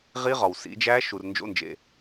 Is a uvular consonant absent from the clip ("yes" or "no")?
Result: no